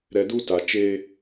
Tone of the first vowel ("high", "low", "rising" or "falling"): low